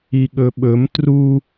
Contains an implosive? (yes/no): yes